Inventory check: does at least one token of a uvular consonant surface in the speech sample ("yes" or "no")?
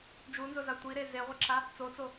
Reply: yes